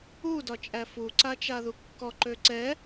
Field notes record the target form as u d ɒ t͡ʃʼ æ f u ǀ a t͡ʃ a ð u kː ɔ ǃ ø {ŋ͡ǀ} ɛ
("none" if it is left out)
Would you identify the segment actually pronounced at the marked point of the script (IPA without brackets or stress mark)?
ǀ